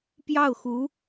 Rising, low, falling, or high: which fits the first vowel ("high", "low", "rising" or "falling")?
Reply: falling